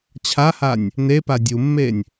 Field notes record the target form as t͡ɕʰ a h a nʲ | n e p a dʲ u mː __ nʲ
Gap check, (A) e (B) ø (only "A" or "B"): A